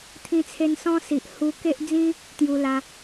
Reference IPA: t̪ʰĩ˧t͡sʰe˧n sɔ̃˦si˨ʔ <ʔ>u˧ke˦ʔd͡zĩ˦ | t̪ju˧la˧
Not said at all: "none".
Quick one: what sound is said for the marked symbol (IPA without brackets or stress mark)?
h